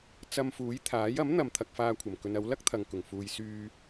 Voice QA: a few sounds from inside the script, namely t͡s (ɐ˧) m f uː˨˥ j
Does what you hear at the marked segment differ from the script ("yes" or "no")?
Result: no